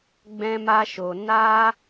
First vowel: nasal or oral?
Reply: nasal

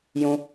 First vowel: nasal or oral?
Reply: nasal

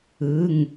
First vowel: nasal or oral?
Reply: oral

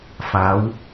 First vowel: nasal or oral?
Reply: oral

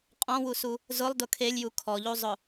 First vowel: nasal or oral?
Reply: nasal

